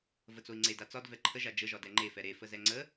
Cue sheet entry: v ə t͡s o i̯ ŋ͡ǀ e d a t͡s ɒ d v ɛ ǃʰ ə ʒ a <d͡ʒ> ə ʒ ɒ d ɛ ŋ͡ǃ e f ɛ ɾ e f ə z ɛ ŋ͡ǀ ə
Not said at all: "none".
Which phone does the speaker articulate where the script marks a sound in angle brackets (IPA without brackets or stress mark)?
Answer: d͡ʒ